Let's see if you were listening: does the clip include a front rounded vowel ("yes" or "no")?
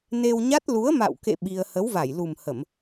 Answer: no